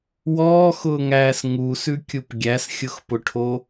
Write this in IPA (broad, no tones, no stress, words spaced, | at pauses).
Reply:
wɔːxʊːŋæːs ŋusʉkʲup ɡʲæsxʲʊxpʊʈʰo